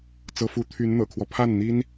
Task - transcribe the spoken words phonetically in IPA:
t͡s ɤ˧˥ f u˧˥ t̪ʰ y˧˥ n n̪ ɤ̰˨˩ kʰ w ɔ˦ pʰ a˥˩ n n̪ i˥ n

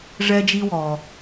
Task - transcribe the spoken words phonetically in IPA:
ʐ ɛ˦ d͡ʒ i˦ w ɔ˨

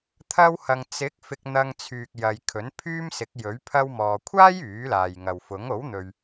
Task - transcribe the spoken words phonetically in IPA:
t̪ʰ ɐ˧ w h ɐ˨ ŋ t͡s ɪ˨˥ k̚ f ɪ˧ k̚ n̪ ɐ˧ ŋ t͡sʰ yː˨ k̚ j ɐ˨ j kʰ ɵ˨˥ n pʰ yː˥ m s ɪ˨˥ k̚ j ɵ˨˥ ɥ pʰ ɐ˧ w m ɔː˨ kʷʰ aː˥ j yː˨˥ l aː˨ j ŋ ɐ˨ w f ʊ˨˥ ŋ o˨˥ w n̪ ɵ˨ ɥ

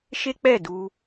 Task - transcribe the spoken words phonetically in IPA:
ʃ e˦ k͡p ɛ˦˨ d u˧

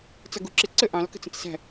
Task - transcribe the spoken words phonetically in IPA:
t͡s ʌ ɡ u ǁ ɪ ǀ ə ʔ ɑ̃ l k ə̤ t͡s ə̃ t͡s s æ̤

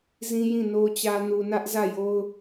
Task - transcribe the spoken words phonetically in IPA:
z ĩ˦ j ĩ˦˨ n o˨ t͡ɕ ä˨ n u˨ n ä˦ ʔ z ä˦˨ j o˦ ʊ̯

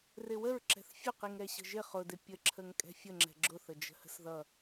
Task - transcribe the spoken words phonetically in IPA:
r ɪ w ə ɹ ǁ ɛ̤ θ fʲ ʊ q i ŋ ɾ ɛ ɕ ə̤ ʒ ɪ χ ʊ d ɪ pʲ ə ǁʰ ə ŋ kʼ ɛ̤ fʲ ə ŋ͡ǁ ɛ̤ ɡ͡ǁ ʊ θ ə d͡ʒ ə̤ h ə̤ s ð ʌ

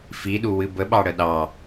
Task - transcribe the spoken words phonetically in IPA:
f i ɗ u w ɨ b ə ɓ ɑ ɽ ə ɗ ɑ

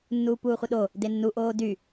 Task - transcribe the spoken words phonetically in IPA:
nː uː p uː χʷ ə ɗ o | d e nː u ʔ oː d y

